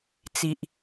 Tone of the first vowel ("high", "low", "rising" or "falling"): low